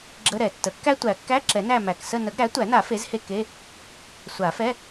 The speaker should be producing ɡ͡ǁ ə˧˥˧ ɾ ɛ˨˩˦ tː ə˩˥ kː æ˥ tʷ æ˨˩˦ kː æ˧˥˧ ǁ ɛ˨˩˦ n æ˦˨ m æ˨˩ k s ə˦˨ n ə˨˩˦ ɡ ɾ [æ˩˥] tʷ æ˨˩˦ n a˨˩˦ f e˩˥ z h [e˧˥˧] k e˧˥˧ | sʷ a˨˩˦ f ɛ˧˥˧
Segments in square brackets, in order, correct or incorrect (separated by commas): correct, incorrect